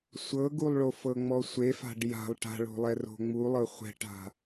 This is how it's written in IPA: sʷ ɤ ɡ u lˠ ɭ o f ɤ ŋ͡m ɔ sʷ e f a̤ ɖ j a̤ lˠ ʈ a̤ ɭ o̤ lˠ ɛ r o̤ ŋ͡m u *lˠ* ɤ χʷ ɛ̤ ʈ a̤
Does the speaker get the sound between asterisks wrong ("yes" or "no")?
no